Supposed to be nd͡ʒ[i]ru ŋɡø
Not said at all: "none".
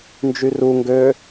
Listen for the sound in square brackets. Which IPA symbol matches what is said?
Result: y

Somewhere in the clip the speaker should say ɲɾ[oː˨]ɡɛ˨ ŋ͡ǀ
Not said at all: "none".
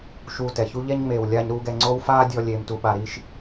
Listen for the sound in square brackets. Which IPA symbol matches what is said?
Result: uː˨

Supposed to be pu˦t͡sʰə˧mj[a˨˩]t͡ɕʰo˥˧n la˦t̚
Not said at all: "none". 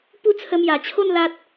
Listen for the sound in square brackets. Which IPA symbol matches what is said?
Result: a˨˩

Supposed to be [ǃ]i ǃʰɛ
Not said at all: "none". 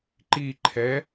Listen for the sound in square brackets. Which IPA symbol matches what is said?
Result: ǃ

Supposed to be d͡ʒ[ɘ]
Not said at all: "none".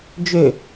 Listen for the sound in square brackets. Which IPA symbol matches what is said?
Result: ø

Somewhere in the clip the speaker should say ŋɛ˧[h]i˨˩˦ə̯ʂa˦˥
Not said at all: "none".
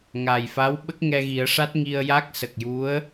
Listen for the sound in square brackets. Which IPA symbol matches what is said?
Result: ɣ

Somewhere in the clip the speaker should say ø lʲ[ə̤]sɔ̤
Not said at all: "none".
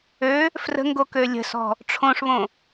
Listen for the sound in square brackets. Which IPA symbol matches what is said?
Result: ə̤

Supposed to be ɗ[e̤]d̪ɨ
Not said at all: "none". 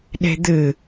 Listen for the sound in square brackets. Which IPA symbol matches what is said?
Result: e̤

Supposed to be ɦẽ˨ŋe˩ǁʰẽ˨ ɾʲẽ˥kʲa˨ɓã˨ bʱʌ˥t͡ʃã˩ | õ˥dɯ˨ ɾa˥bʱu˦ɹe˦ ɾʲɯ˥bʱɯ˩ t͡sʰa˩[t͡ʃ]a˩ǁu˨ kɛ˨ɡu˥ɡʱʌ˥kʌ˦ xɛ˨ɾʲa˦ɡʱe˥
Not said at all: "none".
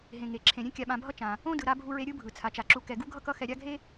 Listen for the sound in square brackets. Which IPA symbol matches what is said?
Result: t͡ʃ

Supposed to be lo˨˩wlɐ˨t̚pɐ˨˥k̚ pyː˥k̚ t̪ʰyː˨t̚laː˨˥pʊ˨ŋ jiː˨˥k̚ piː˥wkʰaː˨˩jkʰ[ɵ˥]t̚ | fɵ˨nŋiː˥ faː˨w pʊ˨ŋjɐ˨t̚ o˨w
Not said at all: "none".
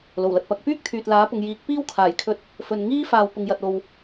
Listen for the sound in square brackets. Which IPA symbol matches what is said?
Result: ɵ˧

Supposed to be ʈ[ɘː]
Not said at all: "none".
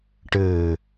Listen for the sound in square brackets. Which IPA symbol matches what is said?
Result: ɘː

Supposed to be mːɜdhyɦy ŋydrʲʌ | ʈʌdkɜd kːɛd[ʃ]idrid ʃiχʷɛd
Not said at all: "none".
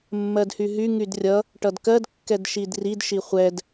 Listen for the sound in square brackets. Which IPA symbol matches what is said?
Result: ʃ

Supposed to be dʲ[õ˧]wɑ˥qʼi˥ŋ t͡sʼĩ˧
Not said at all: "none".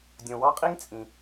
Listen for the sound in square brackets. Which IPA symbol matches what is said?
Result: õ˧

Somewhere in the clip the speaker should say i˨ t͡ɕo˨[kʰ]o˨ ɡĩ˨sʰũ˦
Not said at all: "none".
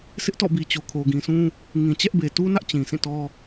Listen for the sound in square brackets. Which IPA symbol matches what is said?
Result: kʰ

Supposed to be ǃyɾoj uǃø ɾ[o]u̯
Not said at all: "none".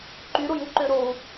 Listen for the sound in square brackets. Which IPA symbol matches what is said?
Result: o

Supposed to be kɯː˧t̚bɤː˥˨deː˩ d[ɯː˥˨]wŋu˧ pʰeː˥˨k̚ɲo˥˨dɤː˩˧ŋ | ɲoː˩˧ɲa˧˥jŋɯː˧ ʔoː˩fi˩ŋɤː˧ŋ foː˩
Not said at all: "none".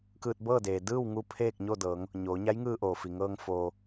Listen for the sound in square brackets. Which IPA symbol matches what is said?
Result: ɯː˥˨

